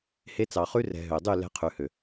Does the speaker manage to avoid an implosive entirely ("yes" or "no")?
yes